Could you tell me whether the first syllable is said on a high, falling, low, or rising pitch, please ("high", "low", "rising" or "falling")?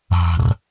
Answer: low